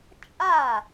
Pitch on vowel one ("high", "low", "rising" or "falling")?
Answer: falling